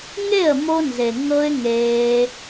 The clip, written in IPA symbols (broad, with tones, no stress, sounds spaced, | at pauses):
ŋ e˦˨ ə̯ m o˧ n z e˨ ŋ ɤ˦ ɪ̯ ŋ eː˧